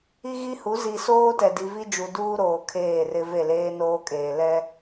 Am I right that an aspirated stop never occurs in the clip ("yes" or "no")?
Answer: no